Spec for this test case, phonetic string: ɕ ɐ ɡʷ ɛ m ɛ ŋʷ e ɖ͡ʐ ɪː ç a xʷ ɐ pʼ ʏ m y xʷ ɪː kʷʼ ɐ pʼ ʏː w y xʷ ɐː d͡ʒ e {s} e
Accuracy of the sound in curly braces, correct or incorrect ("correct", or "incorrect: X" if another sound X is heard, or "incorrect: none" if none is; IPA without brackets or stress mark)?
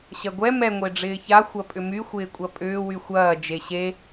incorrect: ɕ